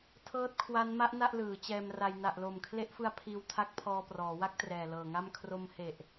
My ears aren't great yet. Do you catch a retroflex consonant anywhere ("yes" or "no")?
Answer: no